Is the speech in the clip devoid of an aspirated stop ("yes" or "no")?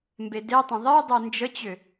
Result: yes